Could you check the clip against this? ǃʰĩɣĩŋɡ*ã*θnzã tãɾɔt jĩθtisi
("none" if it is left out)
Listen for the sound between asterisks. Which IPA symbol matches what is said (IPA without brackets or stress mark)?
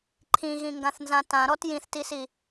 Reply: ã